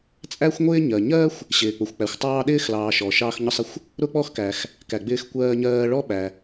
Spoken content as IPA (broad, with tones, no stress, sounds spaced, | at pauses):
t͡sʼ æ˥ xʷ ŋʷ ɪː˥ ɲ ɜ˩ ɲ ɜ˥ xʷ | ɕ ɪː˩ k͡p ʊ˩ xʷ k͡p æ˩ xʷ tˤ ɑː˥ ɗ ɪː˥ x l ɑː˩ ʃ ɔ˩ ʃ ɑː˥ x ɲ ʊ˥ sˤ ɪ˥ xʷ | ɾ ʊ˥ k͡p ɔ˥ x k æ˩ x | k æ˩ ɡ͡b ɪː˥ x kʷ ɜː˥ ɲ ɜː˥ ɭ ɔ˥ ɓ æ˩